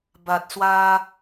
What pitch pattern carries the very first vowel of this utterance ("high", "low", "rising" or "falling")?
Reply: low